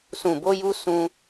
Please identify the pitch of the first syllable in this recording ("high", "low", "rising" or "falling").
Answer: low